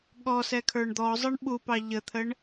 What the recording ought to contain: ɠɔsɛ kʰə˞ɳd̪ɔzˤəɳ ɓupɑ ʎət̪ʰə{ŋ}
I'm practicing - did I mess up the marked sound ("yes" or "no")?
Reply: yes